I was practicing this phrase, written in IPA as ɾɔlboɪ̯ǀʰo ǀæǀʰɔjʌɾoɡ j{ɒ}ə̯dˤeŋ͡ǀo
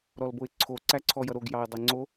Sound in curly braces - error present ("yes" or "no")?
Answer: yes